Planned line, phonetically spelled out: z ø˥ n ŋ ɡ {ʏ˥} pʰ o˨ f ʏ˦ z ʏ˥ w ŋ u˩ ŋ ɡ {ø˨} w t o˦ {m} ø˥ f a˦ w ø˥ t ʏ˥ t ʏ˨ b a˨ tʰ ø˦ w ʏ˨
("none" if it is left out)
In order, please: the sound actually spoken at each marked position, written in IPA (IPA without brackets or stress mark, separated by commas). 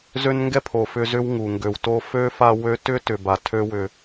ɛ˥, ø˨, f